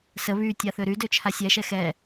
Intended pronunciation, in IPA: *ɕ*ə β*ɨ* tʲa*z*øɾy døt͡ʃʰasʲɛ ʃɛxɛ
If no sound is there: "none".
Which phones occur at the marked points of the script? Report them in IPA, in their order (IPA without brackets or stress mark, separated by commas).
s, y, θ